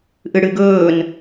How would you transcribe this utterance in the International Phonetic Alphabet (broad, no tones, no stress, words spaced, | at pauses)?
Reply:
ʔɨɽɨɡɵːn